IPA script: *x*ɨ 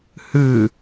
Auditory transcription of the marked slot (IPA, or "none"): h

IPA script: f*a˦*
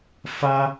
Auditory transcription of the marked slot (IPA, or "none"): a˦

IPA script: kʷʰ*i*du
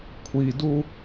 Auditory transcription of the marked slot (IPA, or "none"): i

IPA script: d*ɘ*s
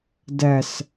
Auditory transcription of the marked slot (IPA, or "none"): ɛ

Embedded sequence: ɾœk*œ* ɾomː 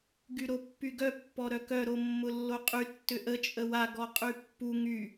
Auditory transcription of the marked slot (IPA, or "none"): œ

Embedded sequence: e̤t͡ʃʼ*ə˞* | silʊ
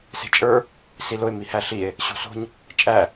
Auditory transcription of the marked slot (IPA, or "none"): ə˞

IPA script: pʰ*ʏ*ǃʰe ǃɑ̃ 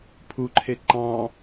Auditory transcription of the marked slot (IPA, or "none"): u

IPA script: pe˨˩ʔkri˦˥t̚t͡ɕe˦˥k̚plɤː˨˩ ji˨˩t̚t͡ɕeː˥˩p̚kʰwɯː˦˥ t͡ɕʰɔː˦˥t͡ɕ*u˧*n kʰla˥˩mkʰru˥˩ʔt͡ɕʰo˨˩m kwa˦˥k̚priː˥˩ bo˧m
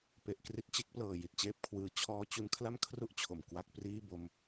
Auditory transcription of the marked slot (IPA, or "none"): u˧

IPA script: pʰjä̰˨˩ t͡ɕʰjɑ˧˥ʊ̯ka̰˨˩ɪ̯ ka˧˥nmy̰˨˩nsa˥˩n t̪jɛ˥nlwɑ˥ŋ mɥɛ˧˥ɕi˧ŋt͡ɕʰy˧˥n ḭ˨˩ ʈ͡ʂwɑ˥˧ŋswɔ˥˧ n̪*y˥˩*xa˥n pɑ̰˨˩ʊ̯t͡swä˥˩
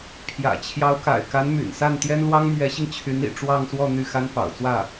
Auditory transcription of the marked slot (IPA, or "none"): y˥˩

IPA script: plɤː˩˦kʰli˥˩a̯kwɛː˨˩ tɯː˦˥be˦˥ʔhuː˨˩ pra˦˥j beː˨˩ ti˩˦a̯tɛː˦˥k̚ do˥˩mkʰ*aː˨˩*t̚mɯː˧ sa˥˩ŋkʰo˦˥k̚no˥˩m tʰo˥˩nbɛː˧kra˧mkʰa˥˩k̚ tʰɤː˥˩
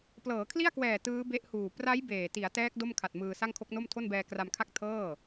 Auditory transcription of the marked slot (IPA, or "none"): a˨˩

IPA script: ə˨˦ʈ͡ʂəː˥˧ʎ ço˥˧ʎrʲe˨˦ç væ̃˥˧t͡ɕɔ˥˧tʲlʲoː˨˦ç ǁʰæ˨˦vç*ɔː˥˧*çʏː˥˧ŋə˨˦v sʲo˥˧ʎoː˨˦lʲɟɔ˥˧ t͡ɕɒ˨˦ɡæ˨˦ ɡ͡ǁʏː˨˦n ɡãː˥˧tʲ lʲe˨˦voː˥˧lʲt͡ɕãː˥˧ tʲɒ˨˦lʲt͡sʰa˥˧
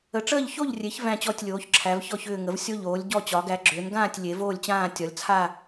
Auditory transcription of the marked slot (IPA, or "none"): ɔ˥˧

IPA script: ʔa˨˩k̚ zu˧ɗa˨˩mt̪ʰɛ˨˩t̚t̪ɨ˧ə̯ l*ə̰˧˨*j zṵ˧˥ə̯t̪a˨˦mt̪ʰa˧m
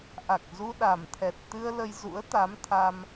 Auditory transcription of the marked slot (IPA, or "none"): ə˧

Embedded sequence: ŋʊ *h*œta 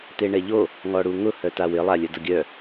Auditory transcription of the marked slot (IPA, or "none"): h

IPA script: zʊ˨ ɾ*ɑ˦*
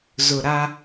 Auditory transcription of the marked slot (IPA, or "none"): a˦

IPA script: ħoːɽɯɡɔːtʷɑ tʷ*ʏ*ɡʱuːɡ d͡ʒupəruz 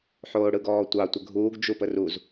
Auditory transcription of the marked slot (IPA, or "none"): ə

